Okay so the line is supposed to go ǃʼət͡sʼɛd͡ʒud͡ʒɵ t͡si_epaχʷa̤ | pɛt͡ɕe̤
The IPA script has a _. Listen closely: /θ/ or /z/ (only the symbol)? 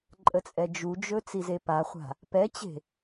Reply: z